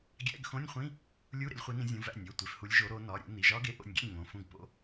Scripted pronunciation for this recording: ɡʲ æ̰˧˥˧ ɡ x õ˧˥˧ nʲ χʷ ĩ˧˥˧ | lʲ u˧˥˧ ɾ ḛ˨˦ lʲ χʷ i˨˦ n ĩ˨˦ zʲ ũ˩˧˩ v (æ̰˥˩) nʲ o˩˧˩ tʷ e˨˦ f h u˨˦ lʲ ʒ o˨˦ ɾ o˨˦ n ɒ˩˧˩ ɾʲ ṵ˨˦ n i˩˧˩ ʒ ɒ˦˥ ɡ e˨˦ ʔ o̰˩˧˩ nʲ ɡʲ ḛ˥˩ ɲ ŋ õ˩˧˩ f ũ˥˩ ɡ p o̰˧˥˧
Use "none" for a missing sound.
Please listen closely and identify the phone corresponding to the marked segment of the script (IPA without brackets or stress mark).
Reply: æ̰˥˩